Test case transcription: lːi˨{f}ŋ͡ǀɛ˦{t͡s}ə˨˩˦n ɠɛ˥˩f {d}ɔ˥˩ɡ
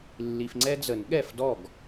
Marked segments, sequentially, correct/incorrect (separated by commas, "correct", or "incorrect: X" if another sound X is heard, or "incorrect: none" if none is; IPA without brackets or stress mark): correct, incorrect: d͡z, correct